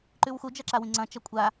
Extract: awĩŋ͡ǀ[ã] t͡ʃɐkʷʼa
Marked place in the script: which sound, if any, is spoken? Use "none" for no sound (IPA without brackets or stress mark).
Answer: ɐ̃